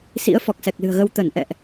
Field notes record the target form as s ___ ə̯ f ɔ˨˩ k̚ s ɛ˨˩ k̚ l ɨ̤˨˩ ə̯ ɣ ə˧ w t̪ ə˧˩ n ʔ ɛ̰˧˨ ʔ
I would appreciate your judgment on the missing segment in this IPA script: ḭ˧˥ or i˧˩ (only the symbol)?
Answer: ḭ˧˥